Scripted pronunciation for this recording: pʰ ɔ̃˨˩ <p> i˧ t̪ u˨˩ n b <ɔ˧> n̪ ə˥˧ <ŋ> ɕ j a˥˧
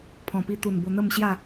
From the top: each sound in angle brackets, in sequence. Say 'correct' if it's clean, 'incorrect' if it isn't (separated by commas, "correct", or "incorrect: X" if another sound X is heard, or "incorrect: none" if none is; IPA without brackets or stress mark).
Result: correct, incorrect: o˧, incorrect: m